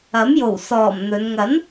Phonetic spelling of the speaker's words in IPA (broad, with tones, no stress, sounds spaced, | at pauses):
ɐ˨˥ m j o˨˩ w s ɔː˨˩ m n̪ ɵ˨˧ n ŋ ɐ˨˥ n